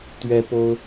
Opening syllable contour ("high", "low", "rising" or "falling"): high